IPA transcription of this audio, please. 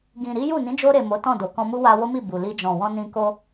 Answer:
ɡĩ˨ɾi˨˦ju˦˨ nĩ˨˦d͡ʒo˧ɾe˨ mo˨˦tɔ̃˦˨do˨kɔ̃˧ mu˦wa˧wo˦mi˦˨ bu˨li˧ d͡ʒɔ̃˨wɔ̃˧nĩ˧ ko˧

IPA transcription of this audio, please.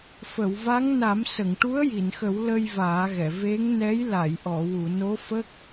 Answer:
fə˨˩˨wva˧˥ŋ na˨˩˦m sə˨˩˨ŋʈu˧˥ə̯ ji˨˩˨nxə˨˩˦w lə˧j vaː˨˩˦ɣɛ˨˩˨ ve˧˥ŋnɛ˧˥j la˨˩˨jʔɔ˨˩˨ wu˨˩˨no˧˥fə˦˥k̚

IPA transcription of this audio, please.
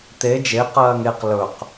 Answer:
t̪e d͡ʒe qɜːŋeq lɵq

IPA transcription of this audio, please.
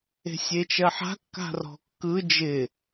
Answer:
e̤sʲet͡ʃɜħa̤ kːa̤rɔ̤kːɯ d͡ʒɪ

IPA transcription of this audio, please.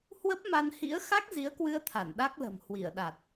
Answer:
hwə˦˥p̚ma˧nhḭ˧˥ə̯ xa˦˥k̚zi˨˦ə̯kwɨ˧ə̯t̪ʰa˧˩n ɗa˦˥k̚lə̤˨˩m hwi˧˩ə̯ɗa˨˩t̚

